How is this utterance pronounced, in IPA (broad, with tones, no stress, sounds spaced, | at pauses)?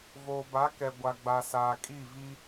v oː˨ b a˨˦ k ɛ˨ ɡʷ a˨ ɡ͡b a˨ s aː˨ kʼ i˦˨ v i˦